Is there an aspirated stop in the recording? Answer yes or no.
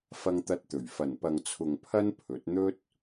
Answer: yes